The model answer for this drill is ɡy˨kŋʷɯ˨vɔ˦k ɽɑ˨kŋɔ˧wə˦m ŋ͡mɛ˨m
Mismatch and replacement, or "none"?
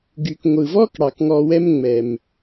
ə˦ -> ɛ˦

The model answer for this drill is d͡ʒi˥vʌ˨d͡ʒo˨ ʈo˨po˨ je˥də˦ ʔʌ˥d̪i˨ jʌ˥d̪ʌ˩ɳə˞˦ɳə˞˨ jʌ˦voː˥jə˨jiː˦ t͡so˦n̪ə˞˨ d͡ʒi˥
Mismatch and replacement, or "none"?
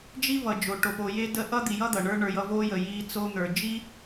none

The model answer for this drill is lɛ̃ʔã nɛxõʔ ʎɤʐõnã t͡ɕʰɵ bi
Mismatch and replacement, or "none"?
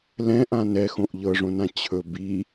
none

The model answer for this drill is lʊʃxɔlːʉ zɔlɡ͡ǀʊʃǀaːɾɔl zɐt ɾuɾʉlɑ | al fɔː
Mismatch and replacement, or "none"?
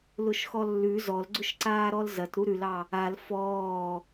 none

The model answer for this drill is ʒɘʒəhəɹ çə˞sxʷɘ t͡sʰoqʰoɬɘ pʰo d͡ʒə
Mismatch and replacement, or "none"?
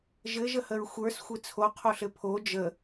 ç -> xʷ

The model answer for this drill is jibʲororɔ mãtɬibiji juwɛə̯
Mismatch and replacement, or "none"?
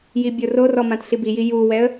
none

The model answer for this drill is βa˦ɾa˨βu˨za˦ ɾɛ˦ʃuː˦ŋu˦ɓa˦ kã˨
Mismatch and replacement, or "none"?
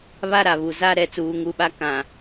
ʃ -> t͡s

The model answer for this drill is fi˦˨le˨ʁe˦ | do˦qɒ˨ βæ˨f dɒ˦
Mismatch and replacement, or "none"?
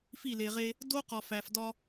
β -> f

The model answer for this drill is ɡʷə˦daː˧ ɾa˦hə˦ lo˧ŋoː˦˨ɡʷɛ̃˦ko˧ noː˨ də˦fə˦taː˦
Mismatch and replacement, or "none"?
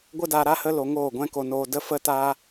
none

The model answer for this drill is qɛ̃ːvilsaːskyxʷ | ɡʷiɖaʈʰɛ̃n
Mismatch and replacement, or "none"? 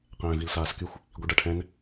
none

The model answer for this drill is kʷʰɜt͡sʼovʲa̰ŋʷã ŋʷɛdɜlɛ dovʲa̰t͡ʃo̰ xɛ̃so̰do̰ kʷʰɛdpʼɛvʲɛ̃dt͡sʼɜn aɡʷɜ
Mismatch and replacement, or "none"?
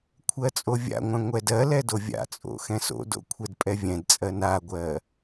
t͡ʃ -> t͡sʼ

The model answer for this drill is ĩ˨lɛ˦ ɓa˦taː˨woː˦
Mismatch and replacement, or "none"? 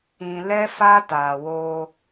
ɓ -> f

